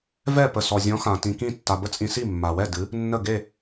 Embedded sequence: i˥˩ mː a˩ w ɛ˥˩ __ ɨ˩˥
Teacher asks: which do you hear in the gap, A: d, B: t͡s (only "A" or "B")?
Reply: A